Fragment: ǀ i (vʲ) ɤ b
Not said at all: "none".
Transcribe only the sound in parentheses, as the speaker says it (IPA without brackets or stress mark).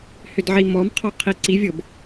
vʲ